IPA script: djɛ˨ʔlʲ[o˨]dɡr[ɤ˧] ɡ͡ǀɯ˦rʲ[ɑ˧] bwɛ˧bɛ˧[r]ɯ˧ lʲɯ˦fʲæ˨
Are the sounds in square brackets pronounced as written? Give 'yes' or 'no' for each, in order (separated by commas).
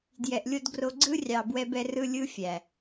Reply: no, no, no, yes